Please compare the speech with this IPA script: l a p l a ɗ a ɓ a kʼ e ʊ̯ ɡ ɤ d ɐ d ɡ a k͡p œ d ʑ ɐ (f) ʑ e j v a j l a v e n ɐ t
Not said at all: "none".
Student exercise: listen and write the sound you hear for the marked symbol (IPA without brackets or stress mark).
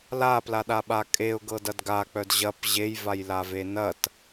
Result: p